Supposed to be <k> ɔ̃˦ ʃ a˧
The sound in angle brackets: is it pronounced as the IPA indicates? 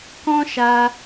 yes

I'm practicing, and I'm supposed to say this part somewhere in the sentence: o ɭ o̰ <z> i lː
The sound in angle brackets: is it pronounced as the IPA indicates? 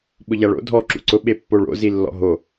yes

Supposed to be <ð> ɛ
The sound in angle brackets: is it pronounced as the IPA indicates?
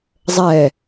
no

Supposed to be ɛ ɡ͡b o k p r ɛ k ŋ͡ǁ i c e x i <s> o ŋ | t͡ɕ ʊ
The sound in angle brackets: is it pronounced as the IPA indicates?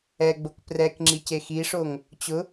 no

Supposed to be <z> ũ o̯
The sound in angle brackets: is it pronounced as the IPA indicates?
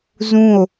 yes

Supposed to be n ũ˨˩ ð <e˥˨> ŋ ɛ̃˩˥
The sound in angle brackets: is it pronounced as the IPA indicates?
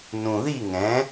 no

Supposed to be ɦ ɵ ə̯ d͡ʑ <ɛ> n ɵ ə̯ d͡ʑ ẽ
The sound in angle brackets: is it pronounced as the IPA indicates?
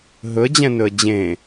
no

